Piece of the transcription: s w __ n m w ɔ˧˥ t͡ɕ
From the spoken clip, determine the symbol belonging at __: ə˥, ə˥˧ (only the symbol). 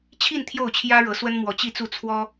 ə˥